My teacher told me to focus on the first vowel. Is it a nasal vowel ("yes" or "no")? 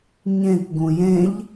yes